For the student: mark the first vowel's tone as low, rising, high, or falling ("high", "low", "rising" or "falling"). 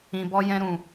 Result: low